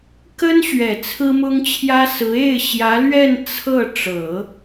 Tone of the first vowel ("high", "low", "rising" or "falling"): high